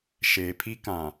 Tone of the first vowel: low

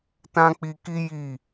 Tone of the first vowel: high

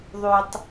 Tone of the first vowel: low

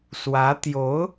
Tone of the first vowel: rising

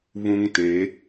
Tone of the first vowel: high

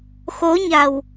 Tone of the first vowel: rising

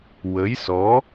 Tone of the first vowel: rising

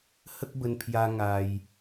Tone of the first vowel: high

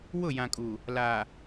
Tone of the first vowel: falling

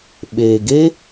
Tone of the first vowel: low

